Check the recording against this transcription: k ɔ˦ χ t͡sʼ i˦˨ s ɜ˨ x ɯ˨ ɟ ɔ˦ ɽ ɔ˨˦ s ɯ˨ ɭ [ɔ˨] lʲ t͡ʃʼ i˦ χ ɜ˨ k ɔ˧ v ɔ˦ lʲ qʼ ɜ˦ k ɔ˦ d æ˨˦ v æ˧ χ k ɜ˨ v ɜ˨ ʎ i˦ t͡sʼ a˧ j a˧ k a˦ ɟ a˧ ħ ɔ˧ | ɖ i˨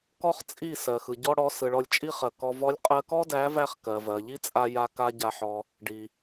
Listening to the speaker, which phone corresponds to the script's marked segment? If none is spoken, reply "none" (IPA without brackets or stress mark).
ɔ˧